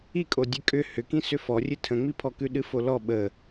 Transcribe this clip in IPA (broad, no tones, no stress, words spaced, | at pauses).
ikʼo dʲɨkʼʏ hʏkĩ sʏfɔrʲɨ tʰə̃ŋ͡mipʰɔkʉ ɗɨfolɔ ɓə